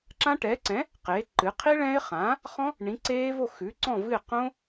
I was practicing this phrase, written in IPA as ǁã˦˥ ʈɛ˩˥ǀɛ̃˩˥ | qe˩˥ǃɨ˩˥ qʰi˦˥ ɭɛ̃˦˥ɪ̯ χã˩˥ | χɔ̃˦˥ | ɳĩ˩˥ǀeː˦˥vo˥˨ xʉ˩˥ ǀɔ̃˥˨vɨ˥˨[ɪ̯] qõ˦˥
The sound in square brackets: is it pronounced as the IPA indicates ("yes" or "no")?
yes